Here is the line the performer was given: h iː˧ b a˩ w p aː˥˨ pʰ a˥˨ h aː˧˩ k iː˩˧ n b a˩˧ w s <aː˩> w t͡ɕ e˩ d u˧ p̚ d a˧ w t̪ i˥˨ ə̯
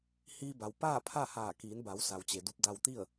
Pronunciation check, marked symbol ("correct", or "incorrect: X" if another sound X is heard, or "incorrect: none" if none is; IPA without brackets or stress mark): incorrect: a˩